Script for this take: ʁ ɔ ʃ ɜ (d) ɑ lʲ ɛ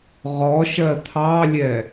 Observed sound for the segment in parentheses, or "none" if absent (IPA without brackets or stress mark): t̪ʰ